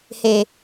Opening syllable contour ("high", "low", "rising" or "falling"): low